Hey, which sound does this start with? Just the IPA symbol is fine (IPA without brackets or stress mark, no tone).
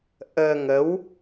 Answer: ʔ